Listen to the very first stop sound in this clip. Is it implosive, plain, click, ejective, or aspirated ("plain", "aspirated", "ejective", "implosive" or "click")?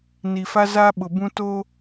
implosive